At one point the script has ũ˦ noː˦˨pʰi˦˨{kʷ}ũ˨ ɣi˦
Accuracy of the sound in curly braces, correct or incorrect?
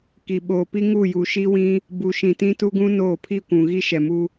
correct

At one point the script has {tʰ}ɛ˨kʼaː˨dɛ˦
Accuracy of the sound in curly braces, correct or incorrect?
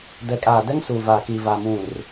incorrect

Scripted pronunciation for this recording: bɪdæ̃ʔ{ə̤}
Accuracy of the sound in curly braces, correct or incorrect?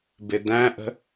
correct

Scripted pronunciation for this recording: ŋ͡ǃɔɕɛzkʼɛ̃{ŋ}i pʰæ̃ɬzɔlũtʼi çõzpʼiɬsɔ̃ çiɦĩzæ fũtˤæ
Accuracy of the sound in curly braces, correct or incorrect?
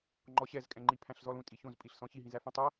incorrect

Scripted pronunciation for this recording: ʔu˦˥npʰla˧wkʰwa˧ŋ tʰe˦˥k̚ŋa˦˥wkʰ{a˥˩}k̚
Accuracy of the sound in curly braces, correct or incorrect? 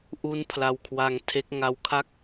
correct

